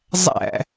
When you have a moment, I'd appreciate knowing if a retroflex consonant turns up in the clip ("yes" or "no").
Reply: no